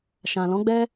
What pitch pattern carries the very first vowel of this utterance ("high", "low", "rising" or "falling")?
low